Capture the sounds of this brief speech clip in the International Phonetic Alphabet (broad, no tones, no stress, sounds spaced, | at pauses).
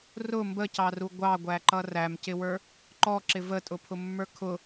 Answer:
r ʊ m b ə c ɑ r u ɡʷ ɑ ɡʷ æ ǃ ʌ r æ m c ɪ w ə˞ | ǃ ɔ ǁ ɪ v ə tʼ ʊ pʰ ʊ mː ə˞ kʰ ʊ